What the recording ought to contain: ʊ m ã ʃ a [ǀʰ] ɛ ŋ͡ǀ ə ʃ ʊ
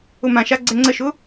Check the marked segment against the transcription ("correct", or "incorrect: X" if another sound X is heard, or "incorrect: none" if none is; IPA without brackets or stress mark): incorrect: ɡ͡ǀ